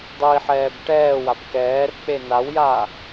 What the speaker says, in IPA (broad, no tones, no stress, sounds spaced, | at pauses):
dˤ i ħ ɛː b ʈ ɛː w a b k ɛː r k͡p e n a w j aː